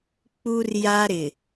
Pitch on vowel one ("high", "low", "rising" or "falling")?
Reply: high